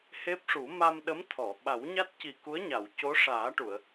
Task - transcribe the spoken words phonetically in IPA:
h e˦˥ p̚ ʂ u˨˩˦ m a˧ m ɗ ə˧˥ m t̪ʰ ɔ˨˩˨ ɓ a˨˩˦ w ɲ a˦˥ t̚ c i˨˩ k u˧˥ ə̯ ɲ a˨˩˨ w c o˧˥ ʂ aː˨˩˦ ʈ u˨˩˨ ə̯

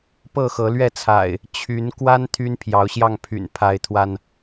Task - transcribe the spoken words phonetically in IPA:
p ɤ˥˨ x ɤ˨˦ l ɥ ɛ˥˨ t͡sʰ a̰˨˩ ɪ̯ | t͡ɕʰ y˨˦ n k w a˦ n t̪ʰ y˦ n pʰ j ɑ˨˦ ʊ̯ ɕ j ɑ˥˨ ŋ pʰ y̰˨˩ n pʰ a˨˦ ɪ̯ t̪ʰ w a˧ n

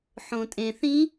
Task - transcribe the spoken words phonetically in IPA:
ħ õ tʼ ẽ θ ĩ

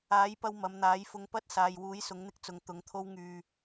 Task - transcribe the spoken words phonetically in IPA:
aː˨˥ j p ɐ˧ w m ɐ˨˧ m n̪ aː˨˥ j f ʊ˨˧ ŋ p ɐ˥ t̚ s aː˨ j w uː˨˥ j s ʊ˨˥ ŋ n̪ ɪ˥ k̚ t͡s ʊ˨˧ ŋ t̪ ʊ˨˥ ŋ t̪ʰ o˥ w ŋ yː˧

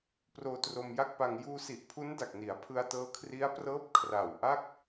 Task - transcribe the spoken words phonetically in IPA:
p r oː˧ t r o˧ m j a˥˩ k̚ p a˧ ŋ j uː˧ s i˨˩ ʔ pʰ u˦˥ n d a˨˩ k̚ n i˩˦ a̯ pʰ ɯ˧ a̯ t ɤː˦˥ kʰ r i˦˥ a̯ p r ɤː˦˥ p̚ kʰ r a˨˩ w ʔ a˥˩ k̚

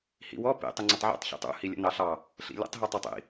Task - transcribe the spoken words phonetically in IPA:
h ḭ w ɔ p ḭ tˤ ʊ ŋ͡ǀ ə tˤ ʕ ḭ tˤ ç ḭ tˤ ṵ h i lʲ ə̰ n ɑ ɬ ɑ | ɬ ḭ lʲ ə̰ tˤ ɦ i tˤ ʌ tˤ ḭ

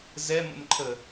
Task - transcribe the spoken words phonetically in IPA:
z ɛ m ə̰ m ǃʰ ə

